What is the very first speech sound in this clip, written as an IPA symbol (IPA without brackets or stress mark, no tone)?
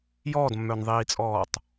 j